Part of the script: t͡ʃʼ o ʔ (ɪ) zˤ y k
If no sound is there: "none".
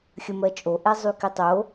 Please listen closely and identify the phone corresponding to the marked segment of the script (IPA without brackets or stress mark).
ɛ